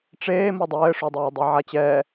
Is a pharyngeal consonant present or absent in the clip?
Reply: present